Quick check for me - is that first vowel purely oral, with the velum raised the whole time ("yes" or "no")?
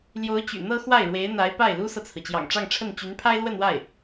yes